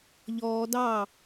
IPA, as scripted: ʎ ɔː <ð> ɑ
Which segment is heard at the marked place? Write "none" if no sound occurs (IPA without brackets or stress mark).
d